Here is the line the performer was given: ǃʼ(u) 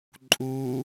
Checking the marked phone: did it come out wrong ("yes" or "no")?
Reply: no